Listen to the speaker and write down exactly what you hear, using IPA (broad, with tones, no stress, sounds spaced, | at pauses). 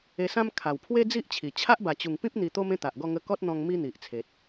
e˧ s ã˦ m kʰ a˨˩ w pʰ w e˦ d͡z i˦ ʔ t͡ɕʰ i˨˩ t͡ɕʰ a˦ ʔ b a˨˩ t͡ɕ u˨˩ ŋ p ĩ˦ p̚ n̪ i˧ t̪ o˦ m ẽ˦ t̪ a˨ ʔ ɡ ɔ˥˧ ŋ ə˧ k ɔ˦ t̚ n̪ ɔ̃˧ ŋ m i˦ n̪ i˨ ʔ t͡sʰ e˨ t̚